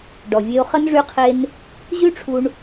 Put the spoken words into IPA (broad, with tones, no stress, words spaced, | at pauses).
ɖɔ˨vʲe˧o̯χə˦n ʐy˦qʰe˦n | ʑy˦ʈ͡ʂʰu˧ɳ